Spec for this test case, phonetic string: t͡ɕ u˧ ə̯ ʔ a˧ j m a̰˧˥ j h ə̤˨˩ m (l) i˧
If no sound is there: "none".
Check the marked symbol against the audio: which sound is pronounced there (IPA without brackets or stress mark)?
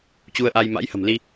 l